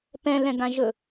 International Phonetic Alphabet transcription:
p ɛ̃ l ɛ̃ ɡ ã ʒ ɵ

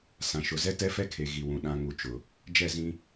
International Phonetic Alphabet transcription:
s ã˨ ʃ ʊ˨ z ɛ˦ t ɛ˦ f ɛ˦ kʰ e˨ ɣ i˨ w ũ˨ ɗ ã˨ ŋ u˨ t͡ʃ ʊ˨ | d͡ʒ ɛ˦˨ z ĩ˦

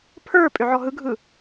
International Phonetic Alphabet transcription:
pʰ ə˞ pʼ ʏ ʕ ɔ ɦ ɯ ɡʱ ɯ

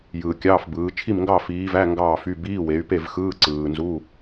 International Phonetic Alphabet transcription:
j ɯː˨ kʲ ɑː˧˥˧ f b ɯː˨˦ t͡ʃʰ i˥˨ m ŋ ɡ ɑ˥˨ f iː˨˦ v æ˧˥˧ ŋ ɡ ɑː˥˨ f y˧˥˧ b iː˧˥˧ w e˨˦ y̯ p e˥˨ v x ɯː˧˥˧ ǀ ɯː˨ n z u˧˥˧

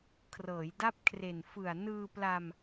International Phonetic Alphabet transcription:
kʰ r ɤː˩˦ j d a˦˥ p̚ kʰ r e˨˩ n f ɯ˨˩ a̯ n ɯː˧ p l a˧ m

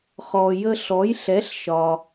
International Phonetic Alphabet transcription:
χ ɔ˩ j ə˧ ɬ ɔ˩˥ j ɬ ɛ˩˥ ɬ ʃ ɒ˩

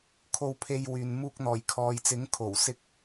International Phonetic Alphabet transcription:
kʰ o˧ w pʰ e˧ j w yː˨ n m uː˧ k̚ n̪ ɔː˨˩ j kʰ ɔː˨ j t͡s ɪ˨˥ ŋ kʰ o˨˩ w s ɪ˥ k̚

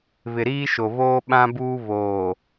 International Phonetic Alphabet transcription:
β ɪ˨ ɾ iː˦ ʃ o˨ β oː˦ ɓ ã˦ b uː˦ β oː˨

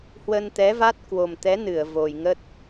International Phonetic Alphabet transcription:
h w ə˧ n t̪ ɛ˨˦ v a˦˥ t̚ k w o˨˩ m t̪ ɛ˨˦ n ɨ˧˩ ə̯ v o˨˩ j ŋ ə˦˥ t̚

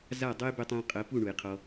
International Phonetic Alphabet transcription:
z a˦˨ dˤ ɤ˦ j b ø˦ tˤ ə̃ː˦ qʼ əː˨˦ p u˦˨ ɳ u˨ j qʰ ɔ˧

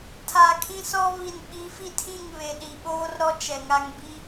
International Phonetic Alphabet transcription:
tʰ a˨ kʰ ĩ˦ s ɔ˦ β i˨ n ɓ i˨˦ f i˦ tʰ ĩ˦˨ ŋ β e˨ ɗ i˨ ɓ oː˦ r ɾ ɔ˦ t͡ʃ ɛ˨ ŋ a˦ ŋ b i˦

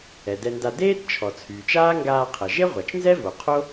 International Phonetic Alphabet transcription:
ɛ˩ d ɛ˧ n d a˧ d eː˥ t t͡ʃʰ ɔ˩ t͡sʰ yː˩ t͡ʃ aː˥ ŋ ɡ aː˧ qʰ ə˩ ʒ e˥ ʁʷ a˩ t͡ʃ n z ɛ˥ v o˩ qʰ o˥

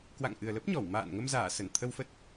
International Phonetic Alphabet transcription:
k w a̰˧˨ ŋ ʔ ɨ˨˩ ə̯ l ə˦˥ p̚ ɲ ɔ˧˩ w m a̰ː˧˨ n ŋ ə˧ m z aː˧˩ s ə˧˩ n t̪ʰ ə˧ w f ə˦˥ t̚

